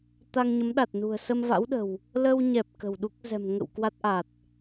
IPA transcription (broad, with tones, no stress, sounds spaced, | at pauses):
t̪ a˧ ŋ ɲ ə˨˦ m ɗ a˨˩ t̚ n ṳ˨˩ ə̯ s ə˧ m v a̰˧˥ w ɗ ə̤˨˩ w | l ə˧ w ɲ ɛ˨˩ p̚ k ə̤˨˩ w ɗ u˦˥ k̚ z ɛ̤˨˩ m ŋ ə̰˧˨ w k w a˦˥ t̚ ʔ a˨˩ t̚